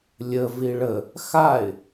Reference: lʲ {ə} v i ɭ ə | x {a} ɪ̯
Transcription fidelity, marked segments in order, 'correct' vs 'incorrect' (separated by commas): correct, correct